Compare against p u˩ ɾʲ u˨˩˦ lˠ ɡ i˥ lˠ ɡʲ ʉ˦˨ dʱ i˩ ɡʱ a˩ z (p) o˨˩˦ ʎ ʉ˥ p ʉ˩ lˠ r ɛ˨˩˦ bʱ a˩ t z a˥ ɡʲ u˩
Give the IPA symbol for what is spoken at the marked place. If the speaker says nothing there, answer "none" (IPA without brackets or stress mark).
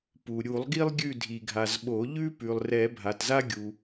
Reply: ɓ